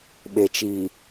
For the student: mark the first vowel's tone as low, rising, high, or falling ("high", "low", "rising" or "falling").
low